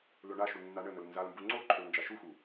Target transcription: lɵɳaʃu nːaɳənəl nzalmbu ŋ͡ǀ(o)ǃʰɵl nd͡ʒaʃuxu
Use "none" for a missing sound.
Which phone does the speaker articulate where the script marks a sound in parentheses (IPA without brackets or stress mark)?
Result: o